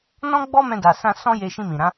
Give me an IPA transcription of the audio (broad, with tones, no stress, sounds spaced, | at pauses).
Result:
n ɔ̃˦ ɡ͡b ɔ˦ m ɛ̃˧ d a˨ s ã˧ s ɔ̃˦ j e˧ ʃ ĩ˧ m ĩ˨ ɾ ã˨˦